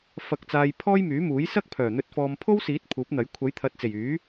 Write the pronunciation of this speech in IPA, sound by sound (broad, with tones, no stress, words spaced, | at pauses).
fɐ˨k̚t͡saː˨j pʰɔː˥jmyː˨˥muː˨˥j sɐ˥k̚pʰœː˨˩n̪ɵ˧t̚ fɔː˨mpʰo˥wsiː˨˥t̚ pʰuː˨˥p̚n̪ɐ˨˥j kʷʰɐ˨˥jt̪ʰɐ˨t̚t͡se˨˩j yː˨˥